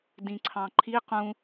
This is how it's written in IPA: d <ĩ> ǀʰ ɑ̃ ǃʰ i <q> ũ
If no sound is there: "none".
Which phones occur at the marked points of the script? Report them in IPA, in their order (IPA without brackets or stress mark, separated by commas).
ĩ, q